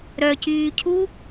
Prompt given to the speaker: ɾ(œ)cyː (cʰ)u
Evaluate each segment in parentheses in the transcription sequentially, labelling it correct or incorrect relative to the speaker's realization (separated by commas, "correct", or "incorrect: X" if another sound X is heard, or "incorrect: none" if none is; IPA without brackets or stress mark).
correct, correct